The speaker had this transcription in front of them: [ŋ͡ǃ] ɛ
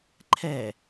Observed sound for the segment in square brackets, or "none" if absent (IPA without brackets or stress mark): ǃʰ